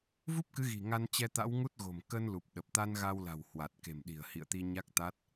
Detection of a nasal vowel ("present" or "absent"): absent